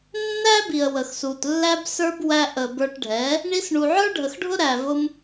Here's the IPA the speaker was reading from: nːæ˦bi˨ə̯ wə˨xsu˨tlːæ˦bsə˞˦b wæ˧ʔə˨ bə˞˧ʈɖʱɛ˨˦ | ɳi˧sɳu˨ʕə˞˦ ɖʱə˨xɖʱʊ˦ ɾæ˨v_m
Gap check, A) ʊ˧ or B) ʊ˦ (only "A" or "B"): A